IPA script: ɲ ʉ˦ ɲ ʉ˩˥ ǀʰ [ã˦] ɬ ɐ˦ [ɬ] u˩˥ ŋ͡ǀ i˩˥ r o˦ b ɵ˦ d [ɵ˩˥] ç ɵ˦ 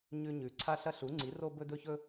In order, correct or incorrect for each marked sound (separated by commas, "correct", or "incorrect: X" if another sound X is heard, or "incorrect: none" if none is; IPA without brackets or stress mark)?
incorrect: a˦, correct, incorrect: ɵ˦